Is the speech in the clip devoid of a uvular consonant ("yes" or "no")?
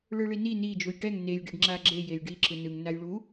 yes